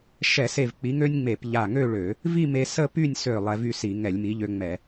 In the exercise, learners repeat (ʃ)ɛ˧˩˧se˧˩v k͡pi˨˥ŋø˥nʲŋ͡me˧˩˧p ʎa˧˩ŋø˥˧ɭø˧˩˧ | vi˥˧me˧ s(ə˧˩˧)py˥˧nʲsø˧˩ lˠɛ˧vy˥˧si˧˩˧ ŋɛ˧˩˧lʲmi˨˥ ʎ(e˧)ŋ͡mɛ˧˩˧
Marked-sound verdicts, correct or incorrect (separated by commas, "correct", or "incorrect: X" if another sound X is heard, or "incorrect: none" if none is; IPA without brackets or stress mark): correct, incorrect: ə˥˧, incorrect: ø˧